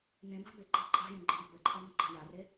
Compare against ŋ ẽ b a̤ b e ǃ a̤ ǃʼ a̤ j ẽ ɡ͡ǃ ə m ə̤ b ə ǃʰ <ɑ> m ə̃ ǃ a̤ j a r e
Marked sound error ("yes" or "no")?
no